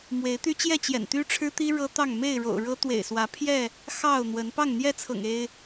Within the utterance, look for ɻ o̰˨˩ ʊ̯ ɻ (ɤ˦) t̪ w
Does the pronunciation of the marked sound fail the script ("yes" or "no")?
no